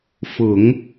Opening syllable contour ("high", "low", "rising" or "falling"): low